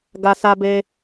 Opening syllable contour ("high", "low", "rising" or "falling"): high